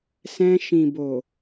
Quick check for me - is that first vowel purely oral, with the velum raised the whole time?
no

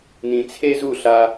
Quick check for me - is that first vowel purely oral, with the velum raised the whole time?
no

